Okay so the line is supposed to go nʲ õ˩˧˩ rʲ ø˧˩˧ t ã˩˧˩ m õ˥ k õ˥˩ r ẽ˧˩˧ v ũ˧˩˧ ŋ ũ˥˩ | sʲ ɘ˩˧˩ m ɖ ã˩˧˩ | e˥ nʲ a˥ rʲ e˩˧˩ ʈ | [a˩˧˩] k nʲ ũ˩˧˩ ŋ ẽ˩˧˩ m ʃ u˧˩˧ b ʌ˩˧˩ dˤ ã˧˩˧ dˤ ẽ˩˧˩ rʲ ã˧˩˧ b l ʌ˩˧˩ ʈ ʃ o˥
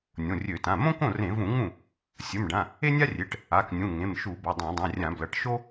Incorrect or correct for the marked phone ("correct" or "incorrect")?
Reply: correct